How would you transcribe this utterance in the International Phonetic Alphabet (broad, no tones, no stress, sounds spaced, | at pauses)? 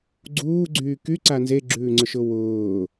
ɡ͡ǀ uː ɡ͡ǀ yː k y ǀ a n z e ɡ͡ǁ ʉː ŋ͡ǀ ʊ ʃ ʊ w ʊː